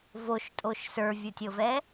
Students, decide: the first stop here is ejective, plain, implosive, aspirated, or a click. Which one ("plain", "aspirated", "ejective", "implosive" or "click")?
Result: ejective